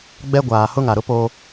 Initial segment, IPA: ɡ͡b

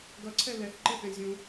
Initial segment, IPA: ɡ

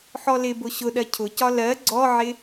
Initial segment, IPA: ħ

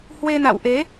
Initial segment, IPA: h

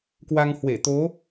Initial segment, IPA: k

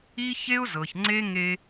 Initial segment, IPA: i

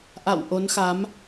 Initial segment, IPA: ʔ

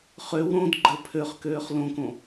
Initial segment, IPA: χ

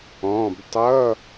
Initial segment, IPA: ɔ̃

